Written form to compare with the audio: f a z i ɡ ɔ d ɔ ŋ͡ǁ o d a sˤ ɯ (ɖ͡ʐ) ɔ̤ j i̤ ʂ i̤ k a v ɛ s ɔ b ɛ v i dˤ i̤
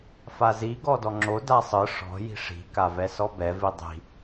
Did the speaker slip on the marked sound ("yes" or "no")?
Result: yes